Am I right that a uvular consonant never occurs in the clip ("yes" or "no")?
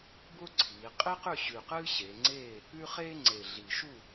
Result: no